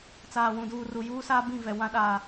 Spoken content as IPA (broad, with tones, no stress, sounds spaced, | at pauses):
t͡s aː˨ w ũ˨ d uː˨ r u˨ j uː˦ s aː˦ b ĩ˦˨ v ɛ˨ w ã˦ ɗ aː˨